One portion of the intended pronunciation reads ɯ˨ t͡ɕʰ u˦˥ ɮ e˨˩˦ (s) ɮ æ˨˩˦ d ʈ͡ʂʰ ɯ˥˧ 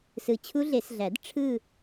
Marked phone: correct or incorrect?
correct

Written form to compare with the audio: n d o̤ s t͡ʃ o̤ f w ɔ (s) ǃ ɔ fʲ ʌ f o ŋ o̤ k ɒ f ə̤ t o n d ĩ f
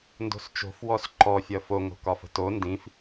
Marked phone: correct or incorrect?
correct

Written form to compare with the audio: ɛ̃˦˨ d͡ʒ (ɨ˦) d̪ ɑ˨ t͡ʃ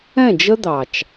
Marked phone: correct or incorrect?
incorrect: ə˦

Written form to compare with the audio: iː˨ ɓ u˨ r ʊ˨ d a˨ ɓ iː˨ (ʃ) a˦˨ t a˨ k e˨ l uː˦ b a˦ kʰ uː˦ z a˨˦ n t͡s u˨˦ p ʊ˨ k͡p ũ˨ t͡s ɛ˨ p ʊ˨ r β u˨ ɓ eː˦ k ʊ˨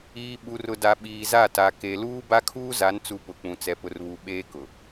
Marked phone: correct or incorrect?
incorrect: z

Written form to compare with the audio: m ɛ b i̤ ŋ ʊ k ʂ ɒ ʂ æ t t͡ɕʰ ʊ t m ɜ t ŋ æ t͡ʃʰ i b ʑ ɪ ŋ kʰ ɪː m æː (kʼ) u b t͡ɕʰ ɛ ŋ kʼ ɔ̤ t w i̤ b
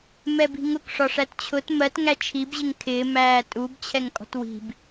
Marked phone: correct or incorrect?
incorrect: tʼ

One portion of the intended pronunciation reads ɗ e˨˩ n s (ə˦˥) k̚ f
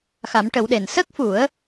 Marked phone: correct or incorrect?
correct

